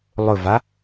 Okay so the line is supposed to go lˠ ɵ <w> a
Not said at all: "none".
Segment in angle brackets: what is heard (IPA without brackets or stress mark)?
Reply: v